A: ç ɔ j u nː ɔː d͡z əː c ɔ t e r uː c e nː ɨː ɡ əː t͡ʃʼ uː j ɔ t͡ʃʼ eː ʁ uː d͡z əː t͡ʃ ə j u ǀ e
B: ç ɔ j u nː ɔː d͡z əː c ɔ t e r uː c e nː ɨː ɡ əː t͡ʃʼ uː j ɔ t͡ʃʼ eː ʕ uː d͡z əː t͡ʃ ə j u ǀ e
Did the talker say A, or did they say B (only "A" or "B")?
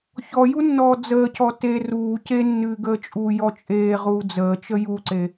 A